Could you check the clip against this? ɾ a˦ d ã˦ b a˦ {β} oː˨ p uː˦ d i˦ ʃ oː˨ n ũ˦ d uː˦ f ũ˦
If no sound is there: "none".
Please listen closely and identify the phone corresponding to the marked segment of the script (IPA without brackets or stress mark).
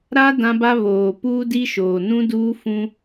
β